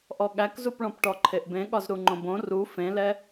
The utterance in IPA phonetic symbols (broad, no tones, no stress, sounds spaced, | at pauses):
ʔ ɔ ɠ æ k z u p ɭ ɔ̃ p ʈ ɔ ǃʰ e ʔ b ẽ ɠ ɒ z ɾ u ŋ͡ǃ õ b õ r u f ẽ l ɛ